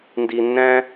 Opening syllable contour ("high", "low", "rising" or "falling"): low